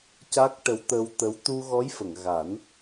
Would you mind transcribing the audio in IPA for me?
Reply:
c a˦˥ k̚ ʈ ə˧˥ w t̪ ə˧ w t̪ ə˧˥ w t̪ u˧ ɣ ɔ˧˥ j f ə˨˩˨ ŋ ɣ a˨˩˦ n

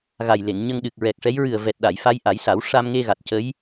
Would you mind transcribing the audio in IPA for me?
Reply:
ɣ a˨˩ j l e˨˩˨ ŋ ɲ ə˧ ŋ ɗ ɨ˨˩ k̚ ɹ ɛ˨˩ k̚ ʂ ɛ˧˥ j ɹ ɨ˨˩ ə̯ v ɛ˨˩ t̚ ɗ a˨˩˨ j f a˧˥ j ʔ a˨˩˦ j s a˨˩˦ w ʂ a˧ m ŋ e˧ ɣ a˨˩ t̚ c ə˧˥ j

